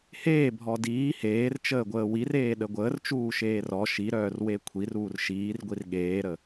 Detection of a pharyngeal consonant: absent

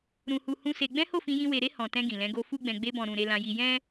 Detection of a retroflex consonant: absent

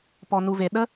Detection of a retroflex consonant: absent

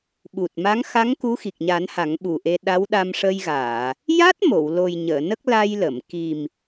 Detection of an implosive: present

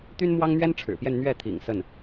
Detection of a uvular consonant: absent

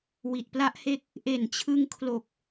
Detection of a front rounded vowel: absent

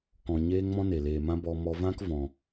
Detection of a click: absent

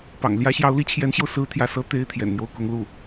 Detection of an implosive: absent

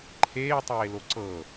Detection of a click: present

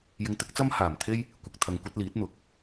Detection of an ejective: absent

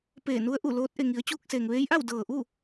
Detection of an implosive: absent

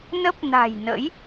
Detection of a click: absent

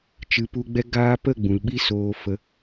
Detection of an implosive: present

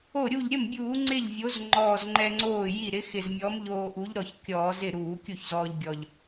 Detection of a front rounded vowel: absent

